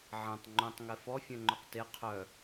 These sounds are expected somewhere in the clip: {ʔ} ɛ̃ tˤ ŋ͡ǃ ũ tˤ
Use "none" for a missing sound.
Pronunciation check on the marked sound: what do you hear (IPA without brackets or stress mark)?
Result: ʕ